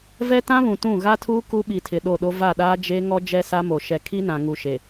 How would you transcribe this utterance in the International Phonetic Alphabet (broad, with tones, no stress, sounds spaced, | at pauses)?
v ɛ˦ t ã˦ β ũ˨ t ũ˦˨ ɣ a˦ tʰ uː˦ k u˦ ɓ i˨ tʰ ɪ˨ ɗ o˦˨ ɗ o˦ v a˦˨ ɗ aː˦ d͡ʒ e˦ ŋ ɔ˦ d͡ʒ ɛ˦ s a˦ m o˨ ʃ ɛ˨ kʰ i˦ n ã˨ ŋ u˨ ʃ e˨